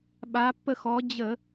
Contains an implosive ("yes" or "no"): yes